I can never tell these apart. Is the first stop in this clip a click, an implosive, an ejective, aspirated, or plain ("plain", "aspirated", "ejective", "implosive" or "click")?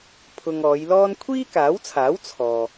aspirated